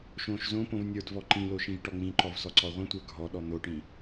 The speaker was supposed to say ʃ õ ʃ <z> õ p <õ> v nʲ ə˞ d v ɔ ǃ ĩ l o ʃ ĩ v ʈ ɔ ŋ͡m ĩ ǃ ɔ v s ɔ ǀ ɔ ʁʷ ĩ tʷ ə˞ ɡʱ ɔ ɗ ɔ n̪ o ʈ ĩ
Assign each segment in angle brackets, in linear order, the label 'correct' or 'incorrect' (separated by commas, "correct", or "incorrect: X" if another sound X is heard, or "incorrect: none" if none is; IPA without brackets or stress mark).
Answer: correct, correct